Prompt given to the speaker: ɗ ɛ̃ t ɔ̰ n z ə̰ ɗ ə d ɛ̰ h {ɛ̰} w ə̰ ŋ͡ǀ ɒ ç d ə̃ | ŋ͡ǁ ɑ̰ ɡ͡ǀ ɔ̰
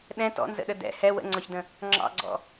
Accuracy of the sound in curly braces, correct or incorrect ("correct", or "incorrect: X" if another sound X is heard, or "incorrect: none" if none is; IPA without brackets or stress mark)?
incorrect: ɛ